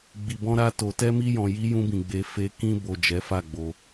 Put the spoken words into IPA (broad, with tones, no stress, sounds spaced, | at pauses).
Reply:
ɡ͡b i˨ b ɔ̃˧ ɾ a˧ t o˨ t ɛ˧ m i˧ j ɔ̃˨ j i˨˦ j ũ˧ b ĩ˨ ɡ͡b e˨˦ f e˧ k ĩ˧ b o˨ d͡ʒ ɛ˨˦ f a˦˨ ɡ͡b o˧